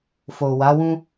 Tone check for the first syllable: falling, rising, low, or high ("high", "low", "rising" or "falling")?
low